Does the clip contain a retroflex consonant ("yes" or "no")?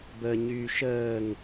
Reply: no